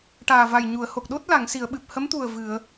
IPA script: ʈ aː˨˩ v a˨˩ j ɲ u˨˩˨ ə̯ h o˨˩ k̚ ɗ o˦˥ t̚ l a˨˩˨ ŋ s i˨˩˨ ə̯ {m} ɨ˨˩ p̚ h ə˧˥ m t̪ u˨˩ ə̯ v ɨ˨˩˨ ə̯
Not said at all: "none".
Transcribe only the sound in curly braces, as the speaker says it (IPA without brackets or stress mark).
ɓ